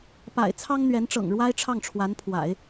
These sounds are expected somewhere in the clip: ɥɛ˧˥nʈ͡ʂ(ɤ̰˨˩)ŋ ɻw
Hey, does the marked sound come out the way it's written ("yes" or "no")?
yes